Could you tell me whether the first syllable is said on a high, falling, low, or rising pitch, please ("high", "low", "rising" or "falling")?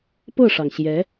falling